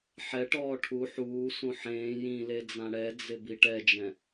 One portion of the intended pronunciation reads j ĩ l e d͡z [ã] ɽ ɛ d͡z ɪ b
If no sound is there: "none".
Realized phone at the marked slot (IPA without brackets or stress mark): ã